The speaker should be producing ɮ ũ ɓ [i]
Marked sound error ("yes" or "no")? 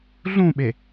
yes